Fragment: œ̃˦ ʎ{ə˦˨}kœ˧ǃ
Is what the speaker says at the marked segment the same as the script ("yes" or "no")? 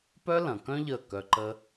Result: yes